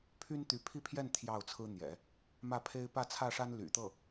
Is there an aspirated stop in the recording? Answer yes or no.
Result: yes